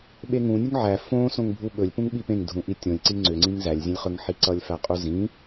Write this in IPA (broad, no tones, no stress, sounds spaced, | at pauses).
ɓ e ŋ ũ nʲ u ŋ ʕ æ f õ s õ ŋ bʱ u ɓ ɵ lʲ p ũ ŋ ɓ i p ẽ ŋ dʱ ũ ʔ i tʲ õ lʲ ǀ i ŋ͡ǀ ʏ ŋ͡ǀ ĩ ŋ z æ lʲ zʲ ẽ lʲ χ ɵ ŋ ħ i ǀ ʌ lʲ f æ qʼ u z ĩ